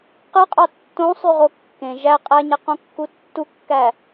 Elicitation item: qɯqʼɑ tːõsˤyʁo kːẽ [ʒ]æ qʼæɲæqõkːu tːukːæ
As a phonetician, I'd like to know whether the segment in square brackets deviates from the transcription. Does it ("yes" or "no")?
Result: no